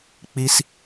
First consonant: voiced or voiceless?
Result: voiceless